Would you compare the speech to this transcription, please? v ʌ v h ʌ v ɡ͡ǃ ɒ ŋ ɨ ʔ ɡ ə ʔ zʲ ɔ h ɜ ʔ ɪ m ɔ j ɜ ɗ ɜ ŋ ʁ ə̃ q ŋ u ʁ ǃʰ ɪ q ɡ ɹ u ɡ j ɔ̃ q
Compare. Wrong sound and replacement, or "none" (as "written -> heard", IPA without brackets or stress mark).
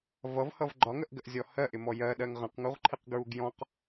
ɨ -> ə